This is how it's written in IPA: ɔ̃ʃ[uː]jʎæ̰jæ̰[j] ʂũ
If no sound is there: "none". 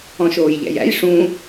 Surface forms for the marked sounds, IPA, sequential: oː, j

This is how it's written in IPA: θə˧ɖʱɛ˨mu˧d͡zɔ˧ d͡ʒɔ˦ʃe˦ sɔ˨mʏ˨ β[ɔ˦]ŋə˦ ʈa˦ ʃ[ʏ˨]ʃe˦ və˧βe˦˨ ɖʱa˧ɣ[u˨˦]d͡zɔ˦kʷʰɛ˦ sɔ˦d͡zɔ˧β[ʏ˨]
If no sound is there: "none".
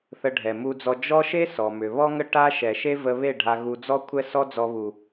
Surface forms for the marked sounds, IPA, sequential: ɔ˦, ɛ˨, u˧, u˨

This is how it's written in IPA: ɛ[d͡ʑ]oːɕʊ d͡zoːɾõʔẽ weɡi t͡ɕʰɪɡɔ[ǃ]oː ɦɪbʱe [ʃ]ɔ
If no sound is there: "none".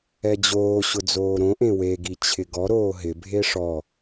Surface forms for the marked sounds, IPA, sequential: d͡ʑ, ɾ, ʂ

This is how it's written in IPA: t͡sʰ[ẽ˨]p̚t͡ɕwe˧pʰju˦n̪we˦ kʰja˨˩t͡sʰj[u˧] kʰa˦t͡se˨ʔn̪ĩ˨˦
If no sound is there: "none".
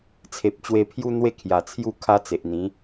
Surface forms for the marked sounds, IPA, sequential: e˨, u˥˧

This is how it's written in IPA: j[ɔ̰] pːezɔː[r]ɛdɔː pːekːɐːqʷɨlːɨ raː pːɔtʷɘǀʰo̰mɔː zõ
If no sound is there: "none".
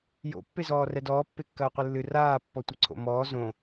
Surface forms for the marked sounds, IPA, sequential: o̰, r

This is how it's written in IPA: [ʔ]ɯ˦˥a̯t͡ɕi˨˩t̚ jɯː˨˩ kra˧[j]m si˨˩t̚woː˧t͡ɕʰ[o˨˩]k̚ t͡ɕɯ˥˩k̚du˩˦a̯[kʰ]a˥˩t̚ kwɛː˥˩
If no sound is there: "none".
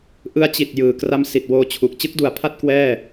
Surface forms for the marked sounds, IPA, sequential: ʔ, none, u˨˩, pʰ

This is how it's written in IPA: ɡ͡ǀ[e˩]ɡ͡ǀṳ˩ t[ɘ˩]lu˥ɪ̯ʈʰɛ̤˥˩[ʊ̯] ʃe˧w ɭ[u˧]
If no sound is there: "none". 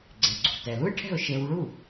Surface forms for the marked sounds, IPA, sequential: e˩, ɛ˩, ʊ̯, u˥˩

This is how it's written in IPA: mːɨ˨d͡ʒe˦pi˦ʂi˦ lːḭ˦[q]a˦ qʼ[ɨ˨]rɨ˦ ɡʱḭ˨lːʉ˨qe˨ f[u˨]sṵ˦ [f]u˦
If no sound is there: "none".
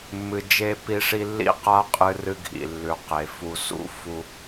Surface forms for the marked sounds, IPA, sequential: q, ɨ˦, u˨, f

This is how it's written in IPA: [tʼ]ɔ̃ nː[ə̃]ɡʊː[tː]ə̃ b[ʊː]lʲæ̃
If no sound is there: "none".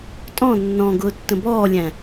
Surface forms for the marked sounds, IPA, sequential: tʼ, ɔ̃, tː, ɔː

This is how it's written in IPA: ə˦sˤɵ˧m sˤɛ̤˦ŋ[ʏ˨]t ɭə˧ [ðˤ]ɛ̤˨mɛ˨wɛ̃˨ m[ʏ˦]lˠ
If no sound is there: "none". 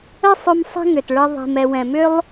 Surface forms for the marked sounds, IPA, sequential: ʏ˨, ðˤ, ʏ˦

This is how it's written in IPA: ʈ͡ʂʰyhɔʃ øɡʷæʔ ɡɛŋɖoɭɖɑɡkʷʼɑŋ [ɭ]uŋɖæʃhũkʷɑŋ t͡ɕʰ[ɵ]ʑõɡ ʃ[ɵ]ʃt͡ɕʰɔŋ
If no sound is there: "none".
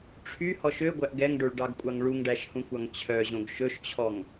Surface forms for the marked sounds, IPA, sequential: ɭ, œ, ɵ

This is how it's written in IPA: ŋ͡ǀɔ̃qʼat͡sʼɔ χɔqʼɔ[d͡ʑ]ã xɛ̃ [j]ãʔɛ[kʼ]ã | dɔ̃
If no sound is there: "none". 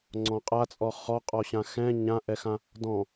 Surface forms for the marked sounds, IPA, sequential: ɕ, ɲ, x

